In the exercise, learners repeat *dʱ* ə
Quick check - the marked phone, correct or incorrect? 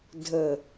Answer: correct